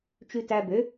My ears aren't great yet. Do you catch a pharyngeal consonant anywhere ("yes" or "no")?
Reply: no